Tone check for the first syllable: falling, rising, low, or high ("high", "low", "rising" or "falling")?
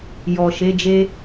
low